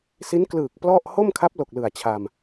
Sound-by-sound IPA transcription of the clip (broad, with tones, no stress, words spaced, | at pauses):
si˦˥n klɯː˨˩k̚ plɔ˥˩ʔ ho˥˩mkʰa˦˥p̚lo˨˩k̚ lɯ˨˩a̯t͡ɕʰa˧m